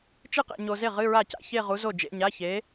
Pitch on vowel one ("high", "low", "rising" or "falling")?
falling